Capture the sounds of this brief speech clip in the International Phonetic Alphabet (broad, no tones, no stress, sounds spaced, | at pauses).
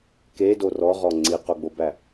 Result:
k e d o r ɔ ʁ ɔ ŋ͡ǀ i q o ɡ͡b o b æ